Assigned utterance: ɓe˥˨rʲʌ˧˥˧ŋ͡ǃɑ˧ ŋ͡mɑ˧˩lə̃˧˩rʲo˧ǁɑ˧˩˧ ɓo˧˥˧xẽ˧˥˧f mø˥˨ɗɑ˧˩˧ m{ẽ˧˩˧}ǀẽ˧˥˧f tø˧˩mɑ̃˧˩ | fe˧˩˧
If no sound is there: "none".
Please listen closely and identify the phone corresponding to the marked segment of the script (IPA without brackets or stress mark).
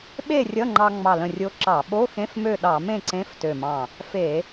ẽ˥˨